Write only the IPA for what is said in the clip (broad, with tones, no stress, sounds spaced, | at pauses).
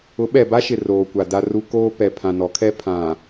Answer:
ʊ˨˦ ɓ ɛ˨ b a˦ ʃ ɪ˨ r oː˨ kʷ a˨ d a˦ r u˦ k oː˦ p ɛ˨ pʰ ã˨ n ɔ˨˦ kʰ ɛ˦ pʰ ã˨